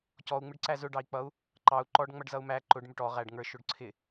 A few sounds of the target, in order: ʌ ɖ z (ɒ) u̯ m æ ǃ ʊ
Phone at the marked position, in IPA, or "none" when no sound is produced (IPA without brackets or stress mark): ʌ